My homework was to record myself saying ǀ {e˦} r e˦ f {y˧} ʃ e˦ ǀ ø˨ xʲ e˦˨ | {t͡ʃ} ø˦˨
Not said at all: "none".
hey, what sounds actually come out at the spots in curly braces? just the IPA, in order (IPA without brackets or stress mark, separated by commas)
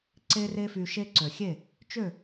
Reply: e˦, y˧, t͡ʃ